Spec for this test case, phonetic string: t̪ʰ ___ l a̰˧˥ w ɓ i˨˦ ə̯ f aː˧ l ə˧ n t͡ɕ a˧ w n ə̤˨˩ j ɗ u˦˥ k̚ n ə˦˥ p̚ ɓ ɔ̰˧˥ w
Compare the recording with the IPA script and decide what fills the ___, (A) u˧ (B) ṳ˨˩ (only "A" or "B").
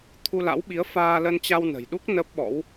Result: A